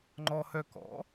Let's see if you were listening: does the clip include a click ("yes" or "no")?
yes